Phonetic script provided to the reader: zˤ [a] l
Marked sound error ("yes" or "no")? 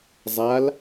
no